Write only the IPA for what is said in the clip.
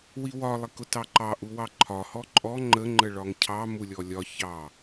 w i w ɒ lˠ i k ʊ t ɑ ǃ ɑ ʔ u w ɑ ǃʰ ɒ h ɔ ǃʼ ɔ ŋ͡ǃ ə ŋ͡ǃ ə ɭ ɒ ŋ cʰ ɑ m u lʲ ɔ lʲ ɒ ç ɑ

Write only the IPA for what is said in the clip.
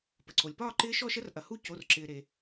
p ə˩ ǀ o˩ lʲ p ɒː˥˧ ǃ ɪː˦˥ ʃ ɔ˥˧ ʃ ə˦˥ r ʔ ɐ˩ h u˥˧ c o˩˧˩ r ǁ ɪː˩ ɾ e˩

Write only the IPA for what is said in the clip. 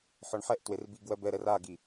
ħ ɔ ɳ ħ ɛ ʔ t w e r b i ɡ w ɜ b ɛ ɾ ɛ r a ɡ i

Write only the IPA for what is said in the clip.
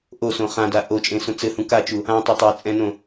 ʔ o s õ χ ã d a ʔ o t͡ʃʼ ẽ s õ t͡s ɘ h ũ k a t͡ʃ u | ã tˤ e tˤ e t͡sʼ ɛ̃ n õ

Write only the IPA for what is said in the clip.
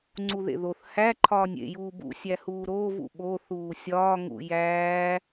ŋ͡ǀ u ð ḛ ð o θ h æ ǃʰ ɒː nʲ ḛ j uː b ṵ sʲ æ h uː ɾ oː v ṵ ɓ o θ uː sʲ ɒː ŋ ṵ j æː

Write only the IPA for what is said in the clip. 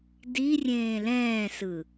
d i rʲ ẽː l ɛ̃ː s ɯ

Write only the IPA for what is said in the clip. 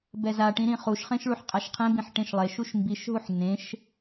b ɛ z a ʈ ĩ ɾ ĩ χ u ʃ χ ẽ ʃ ɭ u ħ qʼ a ʃ qʰ ẽ b ĩ ħ ʈ ẽ ʃ lˠ e ʃ u ʃ m b i ʃ ɦ u ħ n ẽ ʃ

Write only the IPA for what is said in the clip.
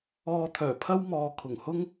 ɔː˧ t̪ʰ œː˨˩ pʰ ɐ˥ w m ɔː˨ kʰ ʊ˨˩ ŋ h ʊ˥ ŋ

